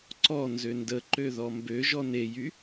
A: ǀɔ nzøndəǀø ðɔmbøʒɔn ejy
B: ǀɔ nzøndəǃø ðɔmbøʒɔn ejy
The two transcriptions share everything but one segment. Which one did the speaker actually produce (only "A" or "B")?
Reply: B